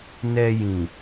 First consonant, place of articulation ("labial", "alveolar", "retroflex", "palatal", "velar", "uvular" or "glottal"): alveolar